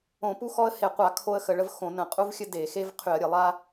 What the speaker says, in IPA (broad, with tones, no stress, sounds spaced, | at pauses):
õ˧˩˧ p u˦ x ɔ˦ ə̯ h e˧˩˧ qʷ a˧˩˧ kʰ o˦ ə̯ x ə˧˩˧ ɭ ə˦ v x õ˧˩˧ n ə̃˧˩˧ qʼ u˦ v xʲ ə˦ d e˧˩˧ x e˦ v qʰ y˧˩˧ ə̯ ɾʲ ə˧˩˧ lˠ a˦